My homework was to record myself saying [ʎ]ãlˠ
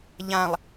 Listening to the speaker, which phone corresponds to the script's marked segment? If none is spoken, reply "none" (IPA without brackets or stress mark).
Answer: ʎ